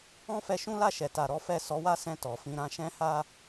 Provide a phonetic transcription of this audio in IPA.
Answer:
ɔ̃˦ f ɛ˧ ʃ ũ˦ l a˦˨ ʃ ɛ˨ t a˨ ɾ ɔ˨˦ f ɛ˦˨ s ɔ˨˦ w a˦ s ɛ̃˧ t ɔ˨ f ĩ˧ ɾ ã˦ ʃ ɛ̃˦ h a˦

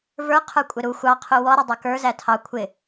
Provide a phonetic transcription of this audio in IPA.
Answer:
v ə˞ qʰ ə˞ kʷʼ ɪ ɾ u xʷ ɑ qʰ u w ɔ ɾ ə dˤ ɛ k ə˞ z æ tʰ ɑ kʷʰ ɪ

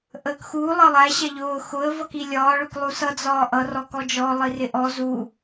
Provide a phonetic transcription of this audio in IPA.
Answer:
ʔ əː k x uː lˠ ʌ lˠ æ ɕ ɛ ʎ ʊː x ʊ ə̯ v ʌ k i lʲ ɒː ɭ ʊ k lˠ u s ʌ d͡z ɒː ʔ ʌ r ɔ k ɔ d͡ʒ ɔ lˠ i r ɪ ʔ ɔ z u

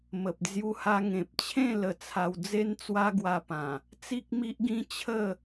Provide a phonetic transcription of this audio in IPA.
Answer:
m ə˨ p̚ d͡z j u˧ h a˧ ŋ ẽ˨ p̚ t͡ɕʰ ẽ˥˧ l ə˧ t͡sʰ a˧ w d͡z e˦ n t͡s w a˦ ɡ w a˧ p ã˨˩ | t͡s i˦ k̚ m i˦ ʔ ɡ ĩ˦ t͡ɕʰ ə˥˧

